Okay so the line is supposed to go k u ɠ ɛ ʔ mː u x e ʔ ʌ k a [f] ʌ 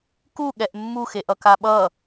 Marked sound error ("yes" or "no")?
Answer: yes